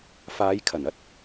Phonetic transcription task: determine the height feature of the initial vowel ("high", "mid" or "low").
low